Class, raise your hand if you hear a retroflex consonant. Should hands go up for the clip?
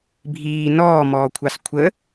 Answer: no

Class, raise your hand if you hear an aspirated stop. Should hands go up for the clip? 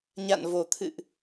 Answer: yes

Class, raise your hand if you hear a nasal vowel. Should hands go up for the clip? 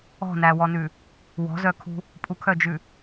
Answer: no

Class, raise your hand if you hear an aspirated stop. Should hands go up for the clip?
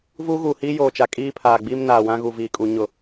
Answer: yes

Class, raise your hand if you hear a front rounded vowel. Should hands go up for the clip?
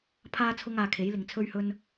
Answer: no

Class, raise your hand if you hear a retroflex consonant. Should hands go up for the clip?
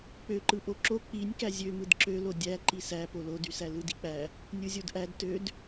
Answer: no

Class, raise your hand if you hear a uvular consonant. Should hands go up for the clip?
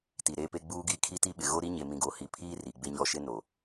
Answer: no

